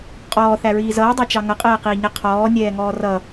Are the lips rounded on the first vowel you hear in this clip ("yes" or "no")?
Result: yes